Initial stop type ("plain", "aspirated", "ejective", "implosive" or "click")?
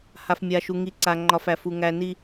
click